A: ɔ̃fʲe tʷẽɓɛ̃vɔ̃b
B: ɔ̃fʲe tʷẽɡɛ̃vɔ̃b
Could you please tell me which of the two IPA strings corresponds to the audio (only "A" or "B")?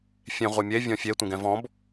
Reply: B